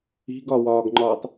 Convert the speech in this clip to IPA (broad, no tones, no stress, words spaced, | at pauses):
i̤ɡɒwɒːɡŋ͡ǃɒːtˤ